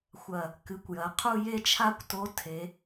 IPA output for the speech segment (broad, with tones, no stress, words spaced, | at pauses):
xʷɐ˨˩ | kɨ˩˥kʷjɐ˩˧ qʰu˥˧je˥˧t͡ʃʰa˥kʷto˧˥ tʰe˩˧